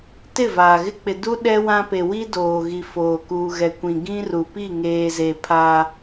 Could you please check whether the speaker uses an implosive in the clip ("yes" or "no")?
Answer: yes